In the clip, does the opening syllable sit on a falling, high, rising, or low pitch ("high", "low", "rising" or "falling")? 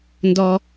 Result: high